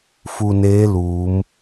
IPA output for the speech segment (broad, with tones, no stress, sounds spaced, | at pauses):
f u˧ n eː˧˥ l uː˩˧ m